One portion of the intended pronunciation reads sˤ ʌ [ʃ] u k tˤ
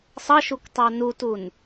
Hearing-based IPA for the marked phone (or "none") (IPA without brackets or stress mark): ʃ